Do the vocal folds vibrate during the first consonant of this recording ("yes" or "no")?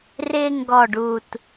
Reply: yes